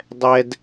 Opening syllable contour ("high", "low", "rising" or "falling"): high